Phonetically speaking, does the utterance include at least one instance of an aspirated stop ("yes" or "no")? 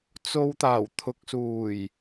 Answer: yes